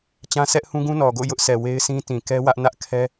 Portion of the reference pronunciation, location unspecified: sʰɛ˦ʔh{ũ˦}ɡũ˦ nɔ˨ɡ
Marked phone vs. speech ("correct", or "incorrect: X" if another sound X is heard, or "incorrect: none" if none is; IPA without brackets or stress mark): correct